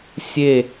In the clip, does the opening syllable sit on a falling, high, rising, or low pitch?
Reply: falling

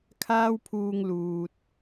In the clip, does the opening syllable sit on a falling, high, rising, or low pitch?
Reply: high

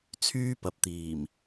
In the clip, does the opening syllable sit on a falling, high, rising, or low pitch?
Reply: high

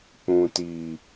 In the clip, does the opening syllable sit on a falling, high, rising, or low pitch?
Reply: low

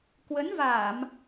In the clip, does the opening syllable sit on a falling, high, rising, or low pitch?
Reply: rising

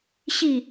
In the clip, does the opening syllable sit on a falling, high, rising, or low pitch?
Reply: falling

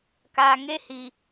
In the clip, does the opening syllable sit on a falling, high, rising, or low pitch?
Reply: low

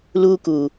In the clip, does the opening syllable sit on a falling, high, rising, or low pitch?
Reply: high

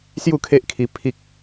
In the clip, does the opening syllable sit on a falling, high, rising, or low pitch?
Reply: falling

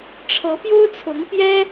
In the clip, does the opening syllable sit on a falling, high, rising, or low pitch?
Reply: rising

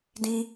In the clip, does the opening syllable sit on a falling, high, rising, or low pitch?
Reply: high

